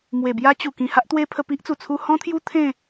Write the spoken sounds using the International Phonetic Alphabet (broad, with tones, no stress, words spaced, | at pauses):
mwe˨˩bja˦t͡ɕu˨˩ kĩ˨˩ha˦ʔt̪we˦pʰə˧ pi˦ʔt͡su˨˩ t͡sʰu˧hɔ̃˦t̪ʰju˦ t̪ʰẽ˥˧